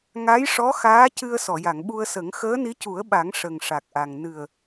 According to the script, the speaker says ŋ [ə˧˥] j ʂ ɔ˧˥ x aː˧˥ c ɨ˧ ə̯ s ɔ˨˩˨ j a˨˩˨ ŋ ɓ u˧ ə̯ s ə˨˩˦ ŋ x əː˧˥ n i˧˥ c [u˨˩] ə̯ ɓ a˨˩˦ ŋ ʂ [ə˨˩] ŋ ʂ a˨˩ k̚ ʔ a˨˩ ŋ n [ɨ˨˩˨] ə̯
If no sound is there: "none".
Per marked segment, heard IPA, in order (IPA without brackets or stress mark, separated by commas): a˧˥, u˨˩˦, ə˨˩, ɨ˨˩